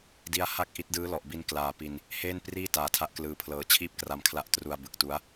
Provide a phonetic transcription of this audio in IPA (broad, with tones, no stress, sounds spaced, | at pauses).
d i˦˥ a̯ h a˥˩ k̚ ʔ i˦˥ t̚ d ɯː˦˥ l ɔ˨˩ ʔ b i˧ n k l aː˨˩ p i˧ n | h eː˥˩ n p r iː˥˩ t aː˨˩ tʰ a˦˥ ʔ k l ɯː˧ pʰ l ɤː˧ t͡ɕʰ iː˥˩ p̚ k r a˧ m kʰ l a˦˥ ʔ t r u˧ a̯ b ɯ˨˩ k̚ t u˦˥ a̯